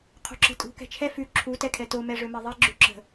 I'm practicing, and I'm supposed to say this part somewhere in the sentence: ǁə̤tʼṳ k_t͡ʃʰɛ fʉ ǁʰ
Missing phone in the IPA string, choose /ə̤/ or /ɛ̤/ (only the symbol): ɛ̤